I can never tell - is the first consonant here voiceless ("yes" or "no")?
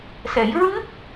yes